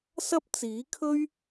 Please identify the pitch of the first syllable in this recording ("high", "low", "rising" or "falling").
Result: high